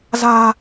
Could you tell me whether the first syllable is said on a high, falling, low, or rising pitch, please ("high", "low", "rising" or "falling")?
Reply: low